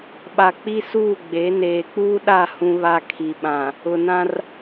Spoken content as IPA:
ɓ a˨ k͡p i˦ s uː˦˨ ɡ͡b e˨˦ n eː˨ k͡p uː˦ ɗ a˦˨ h ũ˦ β a˦ kʰ i˨ ɓ ã˨ | ʊ˨ n ã˦ r

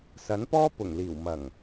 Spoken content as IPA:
s ɐ˨˥ n p ɔː˥ p ʊ˨˩ ŋ l iː˨˩ w m ɐ˨˩ ŋ

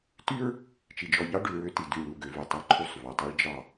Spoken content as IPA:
t y˦ ɹ | t͡ʃ i˨ d͡ʒ ɔ˨ ʎ ɑ˦ ɖ ʉ˨ ɹ ø˦ t i˨ d y˦˨ ɭ u˦˨ ɡ ø˨˦ v ʉ˨ tˤ i˦ ǃʰ u˦˨ sˤ v ʉ˨ tˤ œ˦ ɭ d͡ʒ ɑ˦˨

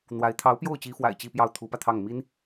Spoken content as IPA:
n̪ w a˧˥ ɪ̯ t̪ʰ ɑ˧˥ ʊ̯ p j o˥˩ ʊ̯ t͡ɕ i˧˥ f w a̰˨˩ ɪ̯ t͡ɕ i˥˧ p j ɑ˥˩ ʊ̯ t̪ʰ u˧˥ p ä˧ t̪ʰ ɑ˥˩ ŋ m i˥ n

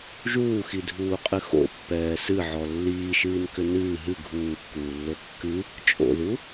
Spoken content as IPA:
ʒ uː x i dʱ uː qʼ ɨ x o̰ pː ɛː s ɨ ʕ ɔ lː iː ʃ ɨː n k ʏ n ɨː ɦ ɨ ɡʱ uː kː uː lː o kː ɨ | t͡ʃʼ o̰ ð u

